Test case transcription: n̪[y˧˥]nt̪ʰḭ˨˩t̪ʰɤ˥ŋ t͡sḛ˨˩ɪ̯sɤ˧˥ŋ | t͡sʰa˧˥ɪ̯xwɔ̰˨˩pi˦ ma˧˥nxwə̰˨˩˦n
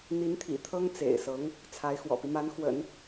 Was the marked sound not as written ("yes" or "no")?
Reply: yes